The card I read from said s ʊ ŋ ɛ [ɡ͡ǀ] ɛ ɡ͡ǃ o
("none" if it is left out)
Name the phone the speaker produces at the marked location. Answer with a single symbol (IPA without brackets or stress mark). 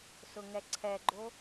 ǀʰ